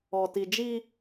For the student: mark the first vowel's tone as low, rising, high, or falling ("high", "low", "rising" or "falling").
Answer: low